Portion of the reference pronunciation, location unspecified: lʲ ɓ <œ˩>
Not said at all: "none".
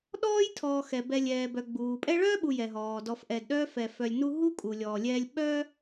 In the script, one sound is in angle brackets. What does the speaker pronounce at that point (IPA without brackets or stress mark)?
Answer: œ˥